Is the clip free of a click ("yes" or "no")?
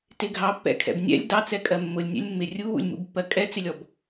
yes